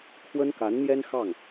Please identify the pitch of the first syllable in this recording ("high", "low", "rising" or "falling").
high